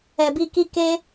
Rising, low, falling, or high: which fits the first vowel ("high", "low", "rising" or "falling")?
low